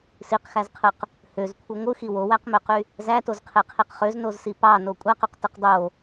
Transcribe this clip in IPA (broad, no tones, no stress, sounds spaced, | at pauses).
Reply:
s i q x æ z qʰ ɯ q | h ø z kʷʰ ɯ ŋʷ ɯ x i w o w æ q m ø q y | z æ t o z qʰ e qʰ i q χ ø z n o z s i p ɑ n o kʷʼ æ q o q t ɯ q dˤ o